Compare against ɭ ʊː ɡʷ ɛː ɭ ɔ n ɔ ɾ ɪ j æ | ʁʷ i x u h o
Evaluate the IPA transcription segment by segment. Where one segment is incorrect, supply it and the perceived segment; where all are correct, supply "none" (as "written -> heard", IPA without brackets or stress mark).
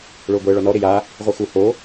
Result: æ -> a